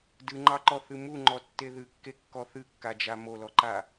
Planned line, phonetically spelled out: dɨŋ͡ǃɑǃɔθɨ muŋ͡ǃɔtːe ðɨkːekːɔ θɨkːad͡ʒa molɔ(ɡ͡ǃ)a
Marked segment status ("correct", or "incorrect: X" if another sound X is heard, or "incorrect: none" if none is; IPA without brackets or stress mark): incorrect: ǃ